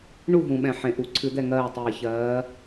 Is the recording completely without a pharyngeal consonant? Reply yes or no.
no